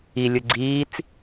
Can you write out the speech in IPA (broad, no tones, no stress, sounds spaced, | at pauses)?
i lʲ ɯ ɡ͡ǀ iː t͡s